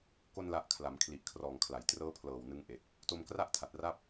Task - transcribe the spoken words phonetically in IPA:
k o˧ n l a˨˩ ʔ kʰ l a˩˦ m kʰ l i˨˩ ʔ kʰ r ɔː˨˩ ŋ kʰ l a˩˦ j t r ɤː˦˥ pʰ l ɤː˨˩ w n ɯ˧ ŋ ʔ e˨˩ k̚ | t o˧ m k r a˥˩ ʔ tʰ a˨˩ t̚ r a˥˩ p̚

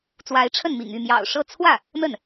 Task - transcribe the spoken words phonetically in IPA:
t͡s w a˧˥ ɪ̯ ʈ͡ʂʰ ə˥˩ n m ḭ˨˩ ŋ y˥˩ m j ɑ̰˨˩ ʊ̯ ʂ ɤ˥˧ t͡sʰ w ä˥˩ | n̪ ə˥˩ n

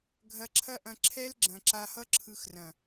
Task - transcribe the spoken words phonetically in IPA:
ɡʱ ɐ˧ ǁʰ ɐ˦ ʔ ɐ̃˧ ǁʰ ɛ˦ l ɡ͡ǁ ɐ̃˨ ǁ a˧ h ʌ˦ ǁʰ ɯ˧ x r ɐ̃˨

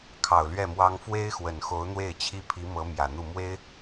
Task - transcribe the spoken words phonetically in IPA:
kʰ ɑ˨˩ ʊ̯ l ɥ ɛ˥˩ m w ɑ˥ ŋ f w e˥ ɪ̯ x w ə˨˩ n x o˧˥ ʊ̯ n̪ w e˥˩ ɪ̯ t͡ɕʰ i˥ pʰ i˧˥ m ɤ˧˥ m j ä˨˩ n̪ u˥˩ m w e˥ ɪ̯

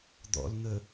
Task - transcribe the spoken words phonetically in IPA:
d̪ ɔ̰ l n̪ ə

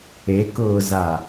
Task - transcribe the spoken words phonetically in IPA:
e k ʊː z a

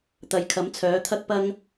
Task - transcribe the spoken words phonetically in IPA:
t̪ ɐ˨˧ j kʰ ɐ˨˥ m t͡sʰ œː˨˥ t̪ʰ ɐ˥ k̚ p ɐ˥ ŋ

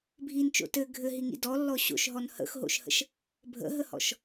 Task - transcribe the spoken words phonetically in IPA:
bʱ i n t͡ʃ o̰ t ɘ ɡʱ ɘ ɦ i ŋ ḭ d ɔ lː ɔ ɕ o̰ ʃ ɦ ɔ n h ə̰ x ɦ o̰ ʃ h ə̰ ʃ | bʱ ə̰ ɦ ə h ɔ̰ ʃ

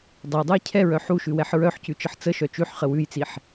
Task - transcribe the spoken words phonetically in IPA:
dˤ ə j dˤ ʉ j cʰ ɛ ɹ œ ħ u ʃ ʉ w ɛ ħ ɹ œ ħ c ʉ t͡ʃ ə ħ t͡s ə ʃ œ t͡ʃ ʉ ħ χ ə w ʉ j t͡s i ħ

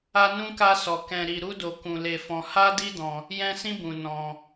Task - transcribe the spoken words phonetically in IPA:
a˦ n ũ˦ k a˦ s ɔ˧ k ɛ̃˧ ɾ i˧ ɾ u˦ d o˧ k ũ˧ l e˧ f ɔ̃˧ h a˦ d i˦ d ɔ̃˧ | j ɛ̃˦ s ĩ˦ b ũ˧ n ɔ̃˧

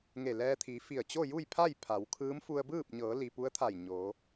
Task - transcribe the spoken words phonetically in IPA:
ŋ e˧˩ l ɛː˧ t̪ʰ i˩˧ f i˧˩ ə̯ t͡ɕ o˥˨ j u˥˨ j pʰ a˥˨ j pʰ a˩˧ w kʰ ɯː˧˥ m f u˧ ə̯ b ɯː˥˨ p̚ ɲ ɤː˩˧ l i˩ p u˧˥ ə̯ t̪ʰ a˧˩ j ɲ o˩˧

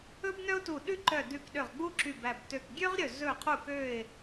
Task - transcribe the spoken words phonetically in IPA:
ɵ˥ b n œ˥ ʊ̯ t u˧˩ ɗ ʉ˥ ǃ œ˧˩ d ʉ˧˩ k ɗ ø˧˩ ʁ ɡ͡b u˥ ǁ y˧˩ b æ˧˩ b t ø˧˩ k ɡʲ ø˥ ʁ ɾʲ ɵ˧˩ z ɵ˧˩ qʰ u˧˩ k ø˧˩ ɪ̯

